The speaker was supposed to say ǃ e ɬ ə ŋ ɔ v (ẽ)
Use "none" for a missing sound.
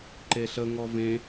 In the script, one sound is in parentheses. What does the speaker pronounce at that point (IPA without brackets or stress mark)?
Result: ẽ